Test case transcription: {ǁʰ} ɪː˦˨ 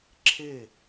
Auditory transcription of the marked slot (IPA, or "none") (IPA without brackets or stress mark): ǁʰ